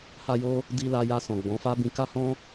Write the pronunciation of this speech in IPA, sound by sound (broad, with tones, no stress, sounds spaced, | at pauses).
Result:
h a˧ j o˧ | d i˧ l a˧ j a˧ s ɔ̃˨ ɡ͡b ɔ̃˨˦ f a˦ b ĩ˧ k a˦ h ɔ̃˦